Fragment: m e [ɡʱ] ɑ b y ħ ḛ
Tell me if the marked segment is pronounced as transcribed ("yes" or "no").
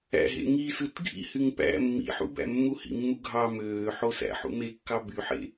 no